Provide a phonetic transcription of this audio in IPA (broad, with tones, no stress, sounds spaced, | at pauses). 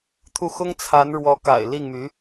t̪ʰ u˥˩ x ʊ˥ ŋ t͡sʰ a˧˥ n ɻ w ɔ˧˥ k a̰˨˩ ɪ̯ l i˥˩ ŋ m y˧˥